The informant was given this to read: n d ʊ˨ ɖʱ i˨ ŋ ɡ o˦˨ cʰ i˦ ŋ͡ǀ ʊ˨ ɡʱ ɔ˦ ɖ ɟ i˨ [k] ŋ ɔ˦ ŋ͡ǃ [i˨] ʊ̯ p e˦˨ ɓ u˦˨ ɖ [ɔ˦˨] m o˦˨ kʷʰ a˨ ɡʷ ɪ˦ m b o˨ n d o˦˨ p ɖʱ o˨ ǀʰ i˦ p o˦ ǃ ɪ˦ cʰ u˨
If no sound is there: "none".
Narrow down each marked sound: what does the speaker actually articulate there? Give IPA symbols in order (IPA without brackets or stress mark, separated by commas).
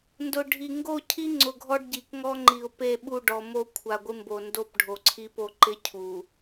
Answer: k, i˨, ɔ˨